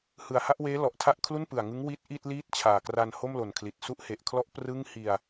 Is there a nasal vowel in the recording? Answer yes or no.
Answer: no